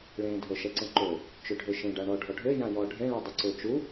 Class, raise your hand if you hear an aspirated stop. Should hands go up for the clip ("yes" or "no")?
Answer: no